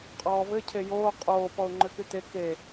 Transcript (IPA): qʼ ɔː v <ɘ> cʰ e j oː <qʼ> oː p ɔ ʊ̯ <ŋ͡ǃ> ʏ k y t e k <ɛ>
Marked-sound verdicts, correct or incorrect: correct, correct, correct, incorrect: e

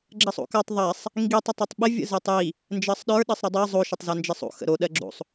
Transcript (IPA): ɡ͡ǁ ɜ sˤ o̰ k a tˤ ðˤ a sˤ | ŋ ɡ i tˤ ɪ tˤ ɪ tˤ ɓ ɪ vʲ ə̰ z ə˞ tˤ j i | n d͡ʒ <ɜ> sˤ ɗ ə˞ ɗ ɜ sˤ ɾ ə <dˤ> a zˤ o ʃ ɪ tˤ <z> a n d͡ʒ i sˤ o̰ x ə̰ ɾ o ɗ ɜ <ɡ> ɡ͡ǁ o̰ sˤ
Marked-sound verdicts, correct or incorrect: correct, correct, correct, incorrect: none

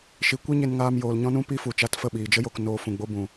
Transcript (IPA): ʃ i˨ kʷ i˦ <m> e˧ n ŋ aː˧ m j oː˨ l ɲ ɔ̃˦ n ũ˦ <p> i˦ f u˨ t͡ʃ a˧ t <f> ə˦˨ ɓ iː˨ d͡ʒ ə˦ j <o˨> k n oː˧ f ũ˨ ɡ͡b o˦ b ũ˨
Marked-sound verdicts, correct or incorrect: incorrect: ɲ, correct, correct, incorrect: o˧

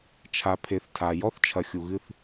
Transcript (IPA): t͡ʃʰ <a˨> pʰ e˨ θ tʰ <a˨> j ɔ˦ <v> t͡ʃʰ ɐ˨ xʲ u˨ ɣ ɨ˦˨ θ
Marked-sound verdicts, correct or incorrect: correct, correct, incorrect: θ

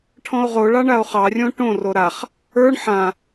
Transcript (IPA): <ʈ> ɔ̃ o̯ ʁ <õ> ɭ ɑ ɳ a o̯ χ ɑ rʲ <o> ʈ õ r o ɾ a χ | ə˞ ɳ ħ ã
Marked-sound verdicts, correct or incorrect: incorrect: ʈʰ, incorrect: o, incorrect: õ

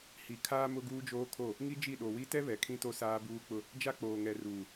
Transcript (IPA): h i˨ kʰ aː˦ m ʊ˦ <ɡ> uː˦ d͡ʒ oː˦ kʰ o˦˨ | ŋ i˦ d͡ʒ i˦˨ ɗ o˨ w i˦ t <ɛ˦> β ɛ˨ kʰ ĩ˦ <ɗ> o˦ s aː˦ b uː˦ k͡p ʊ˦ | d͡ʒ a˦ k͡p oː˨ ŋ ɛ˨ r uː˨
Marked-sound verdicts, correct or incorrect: correct, correct, incorrect: t

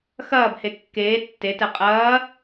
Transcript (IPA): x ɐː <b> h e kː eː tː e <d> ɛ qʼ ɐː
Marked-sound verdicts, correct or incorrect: correct, incorrect: t

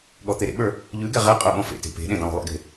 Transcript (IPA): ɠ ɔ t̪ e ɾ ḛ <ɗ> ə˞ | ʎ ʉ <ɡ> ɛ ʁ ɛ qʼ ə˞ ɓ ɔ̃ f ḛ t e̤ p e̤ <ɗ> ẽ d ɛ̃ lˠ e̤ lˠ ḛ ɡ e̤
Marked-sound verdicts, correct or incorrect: incorrect: ɓ, correct, correct

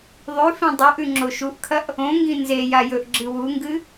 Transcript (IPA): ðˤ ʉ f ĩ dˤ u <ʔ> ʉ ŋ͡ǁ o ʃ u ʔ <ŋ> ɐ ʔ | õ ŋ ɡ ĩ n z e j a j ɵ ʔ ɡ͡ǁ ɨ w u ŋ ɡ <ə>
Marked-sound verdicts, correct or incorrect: correct, incorrect: kʰ, incorrect: ɨ

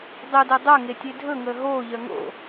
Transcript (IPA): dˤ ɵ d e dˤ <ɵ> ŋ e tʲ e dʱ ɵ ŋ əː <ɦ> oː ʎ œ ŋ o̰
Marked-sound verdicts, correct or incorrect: incorrect: œ, correct

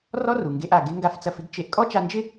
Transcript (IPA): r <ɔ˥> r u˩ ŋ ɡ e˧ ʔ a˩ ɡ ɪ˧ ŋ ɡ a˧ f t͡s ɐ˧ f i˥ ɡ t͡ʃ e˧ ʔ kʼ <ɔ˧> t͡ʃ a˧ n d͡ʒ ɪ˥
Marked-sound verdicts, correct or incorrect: correct, incorrect: ɔ˥

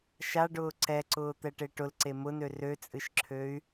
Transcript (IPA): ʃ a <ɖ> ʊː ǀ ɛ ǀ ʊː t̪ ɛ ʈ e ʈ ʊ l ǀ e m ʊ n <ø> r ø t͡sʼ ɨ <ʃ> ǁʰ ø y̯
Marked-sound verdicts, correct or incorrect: correct, correct, correct

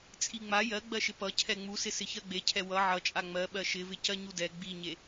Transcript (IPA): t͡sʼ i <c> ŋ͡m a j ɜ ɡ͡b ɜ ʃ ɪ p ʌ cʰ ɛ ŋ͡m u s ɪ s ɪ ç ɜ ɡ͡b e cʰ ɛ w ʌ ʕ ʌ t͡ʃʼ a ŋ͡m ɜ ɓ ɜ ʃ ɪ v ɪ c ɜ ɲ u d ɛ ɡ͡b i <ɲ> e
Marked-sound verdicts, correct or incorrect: incorrect: none, correct

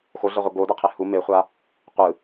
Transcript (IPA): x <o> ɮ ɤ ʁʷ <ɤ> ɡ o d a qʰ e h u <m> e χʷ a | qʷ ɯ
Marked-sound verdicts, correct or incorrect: correct, correct, correct

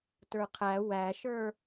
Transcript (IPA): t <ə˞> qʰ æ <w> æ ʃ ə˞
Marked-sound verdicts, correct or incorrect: correct, correct

